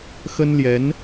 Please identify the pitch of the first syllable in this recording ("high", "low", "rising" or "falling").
high